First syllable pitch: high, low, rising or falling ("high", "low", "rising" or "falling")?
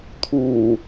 low